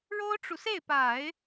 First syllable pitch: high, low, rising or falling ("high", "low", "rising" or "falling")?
high